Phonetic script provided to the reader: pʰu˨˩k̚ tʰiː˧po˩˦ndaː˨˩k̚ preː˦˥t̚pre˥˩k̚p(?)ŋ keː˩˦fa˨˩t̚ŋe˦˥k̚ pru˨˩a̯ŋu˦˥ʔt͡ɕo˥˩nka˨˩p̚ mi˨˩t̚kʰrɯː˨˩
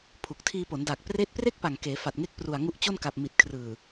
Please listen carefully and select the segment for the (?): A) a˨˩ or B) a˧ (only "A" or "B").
A